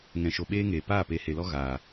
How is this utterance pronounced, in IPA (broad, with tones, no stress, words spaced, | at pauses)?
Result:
ŋɛ̃˨ʃo˨ ɓeː˦ŋeː˨ paː˦˨pe˨˦he˨lɔ˦ ɣaː˨